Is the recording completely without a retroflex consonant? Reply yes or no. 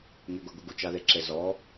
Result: yes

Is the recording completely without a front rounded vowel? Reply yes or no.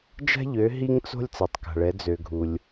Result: no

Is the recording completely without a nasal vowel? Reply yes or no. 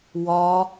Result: yes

